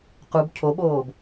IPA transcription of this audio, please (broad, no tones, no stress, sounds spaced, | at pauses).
q u b cʰ o ɓ oː b